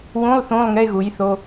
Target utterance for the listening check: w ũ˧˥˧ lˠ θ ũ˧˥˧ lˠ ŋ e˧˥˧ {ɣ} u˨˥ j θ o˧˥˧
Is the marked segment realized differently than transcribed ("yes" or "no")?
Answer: no